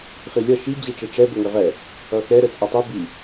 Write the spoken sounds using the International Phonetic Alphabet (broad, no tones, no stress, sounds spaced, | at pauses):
χ i lʲ ʌ ʃ i d͡ʑ i ʈ͡ʂ i ʈ͡ʂ ɛ b o ŋ ə ʁ ɛ | ʌ x ɛ ɾ ə t͡sʼ ɛ tˤ i b i